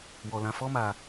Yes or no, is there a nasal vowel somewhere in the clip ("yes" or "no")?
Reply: yes